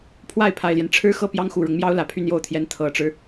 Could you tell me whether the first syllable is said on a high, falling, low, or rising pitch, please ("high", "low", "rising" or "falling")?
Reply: falling